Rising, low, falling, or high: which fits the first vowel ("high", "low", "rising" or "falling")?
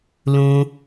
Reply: high